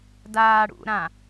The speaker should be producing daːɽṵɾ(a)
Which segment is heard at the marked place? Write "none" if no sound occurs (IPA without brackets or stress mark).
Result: ã